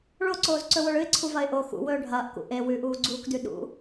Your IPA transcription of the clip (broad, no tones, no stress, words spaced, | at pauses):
ɭoǀoːzǀɵwoɭ ɨɪ̯ǀʰuvɐɪ̯ ʔo xṵwɵː ɖʱɐːʔkṵ ʔe wʉʔuːɡ͡ǀuːkdʉ ɗṵ